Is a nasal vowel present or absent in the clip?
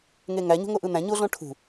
present